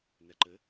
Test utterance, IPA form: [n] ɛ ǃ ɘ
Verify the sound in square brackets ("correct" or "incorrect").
correct